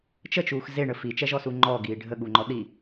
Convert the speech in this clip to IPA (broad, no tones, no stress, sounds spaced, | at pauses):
t͡ʃ ə t͡ʃ uː x z e ɳ ə f i t͡ʃ ɛ ʒ ɔ s u ŋ͡ǃ ɔ ɡ iː ɖʱ ə ɠ u ŋ͡ǃ ɔ ɗ i